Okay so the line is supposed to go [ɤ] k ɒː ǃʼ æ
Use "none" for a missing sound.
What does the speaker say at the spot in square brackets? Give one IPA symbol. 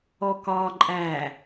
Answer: ɔ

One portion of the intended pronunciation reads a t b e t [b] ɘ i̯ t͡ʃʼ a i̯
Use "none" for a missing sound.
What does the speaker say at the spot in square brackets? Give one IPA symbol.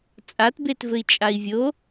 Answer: v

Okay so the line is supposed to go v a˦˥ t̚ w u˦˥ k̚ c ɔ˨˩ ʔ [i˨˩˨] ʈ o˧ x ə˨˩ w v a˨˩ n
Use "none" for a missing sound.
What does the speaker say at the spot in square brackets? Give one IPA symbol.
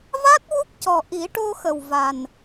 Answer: i˨˩˦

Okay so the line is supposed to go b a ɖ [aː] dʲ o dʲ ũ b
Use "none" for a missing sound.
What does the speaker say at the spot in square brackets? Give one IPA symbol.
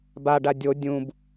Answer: a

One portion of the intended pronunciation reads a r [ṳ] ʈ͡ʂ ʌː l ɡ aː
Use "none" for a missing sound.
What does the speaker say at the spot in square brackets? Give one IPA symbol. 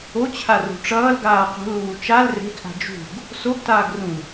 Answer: ṳ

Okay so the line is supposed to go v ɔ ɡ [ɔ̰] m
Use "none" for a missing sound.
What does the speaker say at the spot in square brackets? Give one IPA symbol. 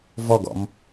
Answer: ɔ̰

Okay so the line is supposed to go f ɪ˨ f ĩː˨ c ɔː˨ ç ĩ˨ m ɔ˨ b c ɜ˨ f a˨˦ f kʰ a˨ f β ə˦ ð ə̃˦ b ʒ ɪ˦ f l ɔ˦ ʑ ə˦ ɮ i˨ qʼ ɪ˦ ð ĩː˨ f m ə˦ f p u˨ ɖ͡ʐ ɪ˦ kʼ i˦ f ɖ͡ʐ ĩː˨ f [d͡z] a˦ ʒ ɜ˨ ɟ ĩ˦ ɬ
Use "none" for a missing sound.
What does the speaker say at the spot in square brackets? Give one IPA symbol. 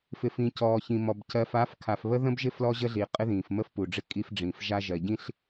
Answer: ʒ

